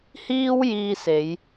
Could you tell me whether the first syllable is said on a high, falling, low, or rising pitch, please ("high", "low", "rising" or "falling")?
high